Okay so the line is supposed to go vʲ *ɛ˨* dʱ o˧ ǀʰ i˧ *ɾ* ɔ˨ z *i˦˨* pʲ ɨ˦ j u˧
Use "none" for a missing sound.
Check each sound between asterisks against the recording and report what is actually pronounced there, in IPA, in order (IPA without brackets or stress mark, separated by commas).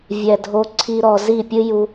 ɛ˨, ɾ, i˦˨